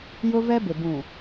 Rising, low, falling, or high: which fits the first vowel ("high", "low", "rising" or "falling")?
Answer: high